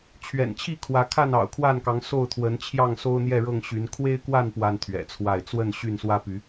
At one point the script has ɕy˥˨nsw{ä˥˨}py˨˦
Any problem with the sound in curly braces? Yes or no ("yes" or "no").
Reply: yes